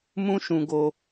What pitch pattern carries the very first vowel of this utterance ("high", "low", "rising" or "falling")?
high